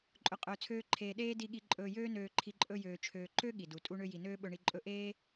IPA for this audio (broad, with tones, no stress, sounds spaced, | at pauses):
ǃʼ ɵ˧ qʼ ɵː˧ t͡sʰ øː˦ ǃʰ eː˧ ɗ eː˦ d i˧ ɠ i˧ ǃʼ ɵː˧ j øː˦ n øː˧ ǃʰ i˧ ǃʼ ɵ˧ j øː˨ t͡ʃʰ øː˨ ǃ ø˦ ɠ i˨ d u˨ tʼ u˦ ɳ ø˦ j i˨ n øː˦ ɓ ɵ˧ ɳ i˧ ǃʼ ɵ˦ ʔ eː˦